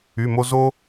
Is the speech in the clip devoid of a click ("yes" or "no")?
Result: yes